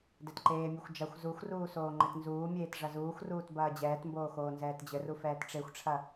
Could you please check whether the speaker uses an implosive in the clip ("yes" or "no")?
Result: no